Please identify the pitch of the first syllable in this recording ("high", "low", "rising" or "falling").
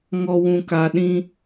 low